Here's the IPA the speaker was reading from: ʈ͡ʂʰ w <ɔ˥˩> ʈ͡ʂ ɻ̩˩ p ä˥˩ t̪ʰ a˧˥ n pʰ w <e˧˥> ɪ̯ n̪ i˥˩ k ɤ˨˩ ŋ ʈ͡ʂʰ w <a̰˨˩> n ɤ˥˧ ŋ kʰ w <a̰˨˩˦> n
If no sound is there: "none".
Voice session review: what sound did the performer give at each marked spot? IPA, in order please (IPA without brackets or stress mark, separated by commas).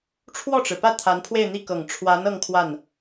ɔ˥˩, e˥˧, a˧˥, a˥˩